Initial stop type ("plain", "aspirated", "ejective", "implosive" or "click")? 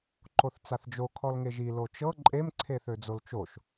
click